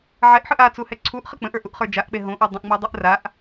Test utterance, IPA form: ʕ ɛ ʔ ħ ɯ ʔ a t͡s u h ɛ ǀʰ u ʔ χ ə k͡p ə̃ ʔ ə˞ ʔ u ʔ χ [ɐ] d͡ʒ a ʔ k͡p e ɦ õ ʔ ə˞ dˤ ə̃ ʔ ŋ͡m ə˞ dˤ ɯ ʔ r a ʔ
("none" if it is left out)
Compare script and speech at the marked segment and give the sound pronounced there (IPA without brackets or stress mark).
ə˞